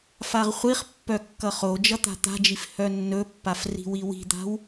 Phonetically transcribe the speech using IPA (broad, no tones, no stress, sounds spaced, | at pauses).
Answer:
f a ʁ χʷ i χ pː œ kː ʌ χ o d͡ʒ ʌ t̪ a̤ t̪ a̤ d͡ʒ i f h œ nː ɵ pː a f r i̤ w i w i̤ d̪ a̤ w